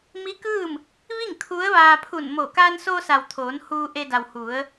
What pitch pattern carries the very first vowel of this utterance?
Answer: rising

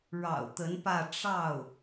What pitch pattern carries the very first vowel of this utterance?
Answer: low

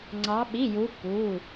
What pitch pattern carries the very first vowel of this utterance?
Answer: rising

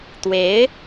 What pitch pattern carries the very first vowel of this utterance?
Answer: rising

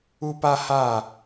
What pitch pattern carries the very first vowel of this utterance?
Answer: high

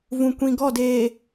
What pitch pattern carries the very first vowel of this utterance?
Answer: low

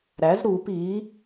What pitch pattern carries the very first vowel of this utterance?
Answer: rising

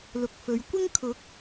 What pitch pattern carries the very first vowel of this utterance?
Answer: low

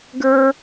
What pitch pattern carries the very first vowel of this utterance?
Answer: high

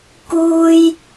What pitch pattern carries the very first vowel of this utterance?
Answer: high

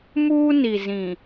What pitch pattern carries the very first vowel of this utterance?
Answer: high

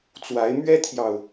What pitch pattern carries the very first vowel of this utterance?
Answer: rising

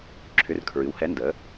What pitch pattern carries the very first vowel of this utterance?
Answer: rising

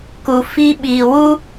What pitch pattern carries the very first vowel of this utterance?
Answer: low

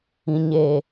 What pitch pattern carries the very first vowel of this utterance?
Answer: low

